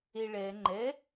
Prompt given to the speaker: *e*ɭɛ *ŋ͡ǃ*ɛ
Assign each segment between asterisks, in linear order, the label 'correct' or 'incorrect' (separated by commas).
correct, correct